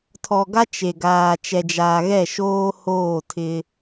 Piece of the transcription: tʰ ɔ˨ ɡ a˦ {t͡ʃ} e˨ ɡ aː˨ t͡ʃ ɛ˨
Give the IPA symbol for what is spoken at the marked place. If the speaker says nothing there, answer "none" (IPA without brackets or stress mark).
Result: t͡ʃ